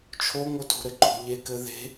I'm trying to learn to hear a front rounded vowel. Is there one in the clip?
no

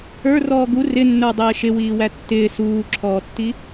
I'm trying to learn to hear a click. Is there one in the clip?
yes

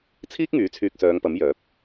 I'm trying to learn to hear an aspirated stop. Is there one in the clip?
yes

